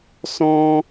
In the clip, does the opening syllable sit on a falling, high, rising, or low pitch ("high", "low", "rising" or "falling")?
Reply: high